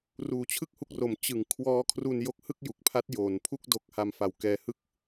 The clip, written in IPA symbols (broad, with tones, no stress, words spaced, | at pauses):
ruː˨˩t͡ɕʰɯ˥˩k̚hu˦˥k̚ro˩˦m t͡ɕɯ˨˩ŋ kʰwɔː˦˥kʰru˧n jo˦˥k̚hɯ˥˩k̚ju˨˩k̚pʰa˦˥t̚ joː˩˦npʰu˥˩k̚ do˥˩k̚ ha˧mfa˩˦wkɛː˧hɯ˥˩k̚